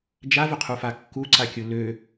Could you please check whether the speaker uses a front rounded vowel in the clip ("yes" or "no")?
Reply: yes